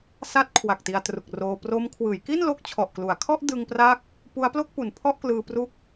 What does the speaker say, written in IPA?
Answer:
sa˦˥t̚ kʰwa˨˩k̚ti˧a̯tru˨˩k̚roː˧ pro˦˥m kʰwɯː˩˦jki˥˩nlo˦˥k̚ t͡ɕʰɔ˨˩ʔklu˩˦a̯ kʰɔ˥˩ʔdɯ˧ŋ pra˥˩k̚ | pu˦˥a̯plo˥˩k̚pu˨˩n pʰɔ˥˩ʔklɯː˧ pru˦˥k̚

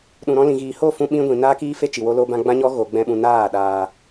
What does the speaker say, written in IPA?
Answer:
ɗũ˨ɾɔ̃˧lĩ˨ɣiː˨ ho˦˨fũ˧ ɓĩ˧ ɡʷĩ˨ naː˦kiː˦fe˦ t͡ʃi˨wo˧lo˧bã˧ ɡ͡bã˦ɲɔ˦ ɣo˧ɡ͡bɛ̃˦ɓũ˧ naː˦˨ ɗaː˨

